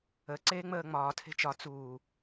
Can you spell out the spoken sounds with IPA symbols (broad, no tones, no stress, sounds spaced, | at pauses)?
ə ǀ eː ŋ͡m əː ŋ͡m ɒː tʰ e̤ t͡ʃ ɒ t͡s uː